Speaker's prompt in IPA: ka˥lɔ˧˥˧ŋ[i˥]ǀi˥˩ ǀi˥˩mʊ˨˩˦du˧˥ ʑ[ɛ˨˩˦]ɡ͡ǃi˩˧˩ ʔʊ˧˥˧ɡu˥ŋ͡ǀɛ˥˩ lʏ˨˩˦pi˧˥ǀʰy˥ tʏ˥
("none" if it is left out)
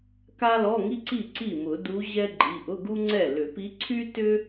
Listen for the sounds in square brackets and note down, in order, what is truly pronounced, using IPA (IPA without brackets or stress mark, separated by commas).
i˥, ɛ˥